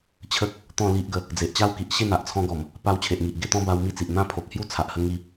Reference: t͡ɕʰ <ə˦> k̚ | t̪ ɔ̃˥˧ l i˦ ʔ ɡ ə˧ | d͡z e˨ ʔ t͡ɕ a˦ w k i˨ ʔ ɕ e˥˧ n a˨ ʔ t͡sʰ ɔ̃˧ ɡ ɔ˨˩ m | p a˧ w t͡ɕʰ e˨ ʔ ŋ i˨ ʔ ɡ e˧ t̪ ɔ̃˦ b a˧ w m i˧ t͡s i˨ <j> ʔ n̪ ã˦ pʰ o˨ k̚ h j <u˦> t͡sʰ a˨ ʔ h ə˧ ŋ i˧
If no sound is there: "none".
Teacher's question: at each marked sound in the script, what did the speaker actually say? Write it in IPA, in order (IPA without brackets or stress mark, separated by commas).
ə˦, none, u˦